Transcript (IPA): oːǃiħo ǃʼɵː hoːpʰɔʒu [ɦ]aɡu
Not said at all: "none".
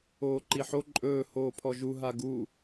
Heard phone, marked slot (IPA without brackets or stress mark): ɦ